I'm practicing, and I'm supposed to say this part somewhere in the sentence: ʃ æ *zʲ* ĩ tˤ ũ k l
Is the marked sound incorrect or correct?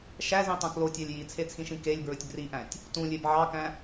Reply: incorrect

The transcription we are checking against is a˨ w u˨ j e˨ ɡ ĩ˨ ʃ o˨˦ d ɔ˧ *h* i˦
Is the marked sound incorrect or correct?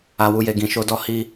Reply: correct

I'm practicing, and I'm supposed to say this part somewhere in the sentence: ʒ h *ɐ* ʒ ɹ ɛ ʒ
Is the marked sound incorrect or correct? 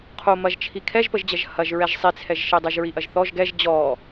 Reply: correct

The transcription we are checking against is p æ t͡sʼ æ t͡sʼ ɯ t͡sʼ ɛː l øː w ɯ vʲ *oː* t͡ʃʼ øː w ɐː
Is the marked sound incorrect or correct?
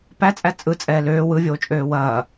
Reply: correct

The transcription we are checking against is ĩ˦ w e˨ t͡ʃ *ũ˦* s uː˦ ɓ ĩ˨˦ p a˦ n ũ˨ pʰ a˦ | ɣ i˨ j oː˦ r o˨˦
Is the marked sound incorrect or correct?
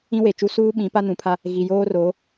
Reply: incorrect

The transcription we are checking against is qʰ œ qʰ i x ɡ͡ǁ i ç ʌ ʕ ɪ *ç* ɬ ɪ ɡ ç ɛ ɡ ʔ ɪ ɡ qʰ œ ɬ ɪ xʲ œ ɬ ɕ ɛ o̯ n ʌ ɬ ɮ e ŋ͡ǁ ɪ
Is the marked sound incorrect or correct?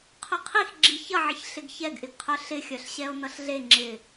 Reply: correct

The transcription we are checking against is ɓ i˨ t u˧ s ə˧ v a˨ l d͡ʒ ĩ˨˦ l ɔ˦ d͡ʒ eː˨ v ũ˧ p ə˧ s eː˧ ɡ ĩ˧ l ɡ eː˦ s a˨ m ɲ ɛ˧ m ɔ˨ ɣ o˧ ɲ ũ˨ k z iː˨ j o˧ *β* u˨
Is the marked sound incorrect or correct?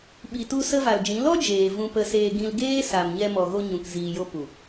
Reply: incorrect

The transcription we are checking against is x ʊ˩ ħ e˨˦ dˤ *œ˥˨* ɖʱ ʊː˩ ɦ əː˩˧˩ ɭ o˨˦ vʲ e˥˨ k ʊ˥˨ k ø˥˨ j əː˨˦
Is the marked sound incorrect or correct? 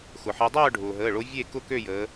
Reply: incorrect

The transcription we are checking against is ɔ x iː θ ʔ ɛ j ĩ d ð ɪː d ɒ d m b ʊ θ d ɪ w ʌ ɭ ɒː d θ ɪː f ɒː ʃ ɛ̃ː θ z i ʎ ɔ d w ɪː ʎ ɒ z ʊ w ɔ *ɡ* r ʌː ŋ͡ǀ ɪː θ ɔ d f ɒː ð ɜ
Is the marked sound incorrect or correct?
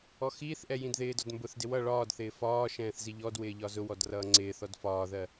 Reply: incorrect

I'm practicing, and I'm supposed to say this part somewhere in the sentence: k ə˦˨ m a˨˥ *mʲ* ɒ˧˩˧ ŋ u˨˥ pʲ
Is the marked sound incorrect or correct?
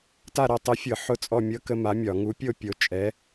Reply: correct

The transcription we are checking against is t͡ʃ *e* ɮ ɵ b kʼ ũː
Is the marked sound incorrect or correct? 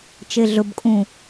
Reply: correct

